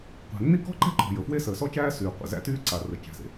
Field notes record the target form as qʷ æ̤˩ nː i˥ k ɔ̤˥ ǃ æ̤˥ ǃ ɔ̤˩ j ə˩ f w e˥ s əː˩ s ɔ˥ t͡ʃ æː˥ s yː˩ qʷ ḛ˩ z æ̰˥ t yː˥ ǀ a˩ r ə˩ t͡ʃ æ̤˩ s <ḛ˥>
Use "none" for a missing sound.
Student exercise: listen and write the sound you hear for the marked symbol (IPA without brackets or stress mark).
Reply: ḛ˩